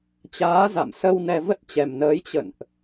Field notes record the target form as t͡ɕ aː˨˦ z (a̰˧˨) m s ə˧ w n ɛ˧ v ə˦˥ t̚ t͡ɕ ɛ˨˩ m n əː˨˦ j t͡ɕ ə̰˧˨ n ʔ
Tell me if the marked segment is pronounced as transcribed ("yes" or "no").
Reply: yes